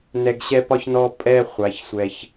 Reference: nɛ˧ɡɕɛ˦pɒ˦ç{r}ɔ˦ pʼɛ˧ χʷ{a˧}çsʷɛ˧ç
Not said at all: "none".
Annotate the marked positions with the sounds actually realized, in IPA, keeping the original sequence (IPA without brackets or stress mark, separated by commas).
n, a˨˦